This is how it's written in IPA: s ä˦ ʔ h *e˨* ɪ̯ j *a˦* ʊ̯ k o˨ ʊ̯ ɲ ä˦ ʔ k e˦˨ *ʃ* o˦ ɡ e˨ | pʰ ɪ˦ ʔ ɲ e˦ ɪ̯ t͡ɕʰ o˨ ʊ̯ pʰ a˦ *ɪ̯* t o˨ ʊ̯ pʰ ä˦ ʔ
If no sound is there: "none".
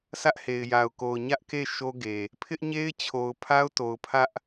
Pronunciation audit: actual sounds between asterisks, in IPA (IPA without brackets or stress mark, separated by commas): e˨, a˨, ʃ, ʊ̯